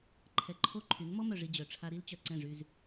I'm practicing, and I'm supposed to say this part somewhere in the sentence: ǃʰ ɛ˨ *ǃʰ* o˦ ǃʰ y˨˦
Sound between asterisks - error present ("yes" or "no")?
no